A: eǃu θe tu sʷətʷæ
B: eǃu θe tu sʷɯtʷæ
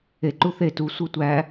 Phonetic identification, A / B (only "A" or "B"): B